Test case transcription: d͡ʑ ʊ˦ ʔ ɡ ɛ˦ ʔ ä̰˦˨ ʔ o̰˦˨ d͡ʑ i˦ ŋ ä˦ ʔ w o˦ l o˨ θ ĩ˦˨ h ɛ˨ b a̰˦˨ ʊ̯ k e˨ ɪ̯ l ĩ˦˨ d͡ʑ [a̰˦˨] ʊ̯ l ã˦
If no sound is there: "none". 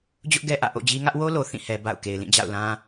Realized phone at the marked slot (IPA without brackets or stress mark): a̰˦˨